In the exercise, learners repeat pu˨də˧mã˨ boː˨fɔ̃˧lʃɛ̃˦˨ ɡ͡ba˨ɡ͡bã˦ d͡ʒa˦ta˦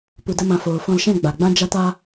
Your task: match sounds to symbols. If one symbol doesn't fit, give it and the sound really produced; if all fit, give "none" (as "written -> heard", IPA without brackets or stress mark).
b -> f